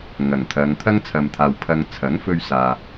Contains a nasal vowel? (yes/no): no